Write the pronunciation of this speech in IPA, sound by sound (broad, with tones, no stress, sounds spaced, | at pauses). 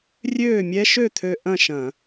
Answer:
rʲ øː˥˨ mʲ ɛ˦˥ ʃ ø˥˨ t̪ʰ ø˧ ʔ ɐ̃˥˨ ʃ ɐ̃˧˩˧